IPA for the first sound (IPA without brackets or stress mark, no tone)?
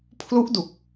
pʰ